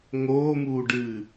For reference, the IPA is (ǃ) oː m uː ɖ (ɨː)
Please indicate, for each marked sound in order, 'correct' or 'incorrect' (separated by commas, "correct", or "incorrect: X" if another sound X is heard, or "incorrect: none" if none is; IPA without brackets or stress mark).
incorrect: ŋ, correct